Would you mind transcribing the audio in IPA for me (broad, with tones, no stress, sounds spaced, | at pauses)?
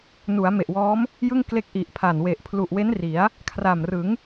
n u˩˦ a̯ m e˨˩ ʔ w ɔː˦˥ m | j ɯ˥˩ ŋ k l e˦˥ k̚ ʔ i˨˩ ʔ pʰ a˨˩ n w e˨˩ ʔ pʰ l u˨˩ ʔ w e˦˥ n r i˩˦ a̯ | kʰ r a˨˩ m r ɯ˩˦ ŋ